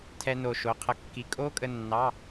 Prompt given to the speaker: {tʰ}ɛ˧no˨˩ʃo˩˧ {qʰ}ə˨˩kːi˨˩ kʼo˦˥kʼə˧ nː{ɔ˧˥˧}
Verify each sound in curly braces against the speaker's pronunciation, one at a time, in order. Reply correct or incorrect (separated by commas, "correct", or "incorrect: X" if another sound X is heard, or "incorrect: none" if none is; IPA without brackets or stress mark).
correct, correct, incorrect: ɑ˧˥˧